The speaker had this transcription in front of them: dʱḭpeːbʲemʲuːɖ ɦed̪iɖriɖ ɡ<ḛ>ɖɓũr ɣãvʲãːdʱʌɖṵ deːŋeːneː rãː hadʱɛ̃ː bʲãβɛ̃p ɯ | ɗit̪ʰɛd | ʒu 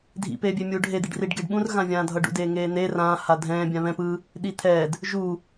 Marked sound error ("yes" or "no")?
yes